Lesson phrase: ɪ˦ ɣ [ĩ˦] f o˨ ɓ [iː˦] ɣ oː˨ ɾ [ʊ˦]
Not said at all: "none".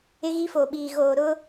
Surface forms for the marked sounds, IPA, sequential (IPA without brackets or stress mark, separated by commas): i˦, iː˨, ʊ˦